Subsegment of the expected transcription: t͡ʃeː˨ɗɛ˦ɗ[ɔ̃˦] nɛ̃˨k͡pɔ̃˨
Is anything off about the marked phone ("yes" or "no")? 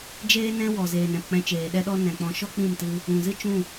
yes